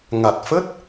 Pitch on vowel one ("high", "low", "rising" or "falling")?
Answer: low